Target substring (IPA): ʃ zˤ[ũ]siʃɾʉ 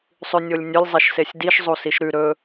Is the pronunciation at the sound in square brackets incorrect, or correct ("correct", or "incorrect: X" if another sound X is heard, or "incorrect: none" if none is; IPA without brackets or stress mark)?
incorrect: u